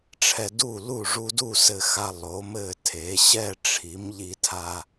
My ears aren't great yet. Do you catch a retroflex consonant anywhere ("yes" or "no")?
yes